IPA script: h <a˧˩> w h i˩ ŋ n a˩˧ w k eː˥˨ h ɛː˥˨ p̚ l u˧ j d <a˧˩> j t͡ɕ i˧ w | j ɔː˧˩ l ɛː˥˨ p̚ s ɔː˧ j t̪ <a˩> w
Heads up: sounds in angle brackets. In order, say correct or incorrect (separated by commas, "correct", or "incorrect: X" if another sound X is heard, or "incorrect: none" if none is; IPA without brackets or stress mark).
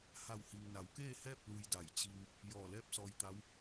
correct, correct, incorrect: a˧˥